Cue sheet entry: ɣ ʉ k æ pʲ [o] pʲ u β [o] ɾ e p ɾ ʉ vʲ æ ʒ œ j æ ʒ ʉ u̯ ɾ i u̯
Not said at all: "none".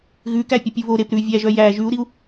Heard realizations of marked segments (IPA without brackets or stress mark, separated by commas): ɵ, o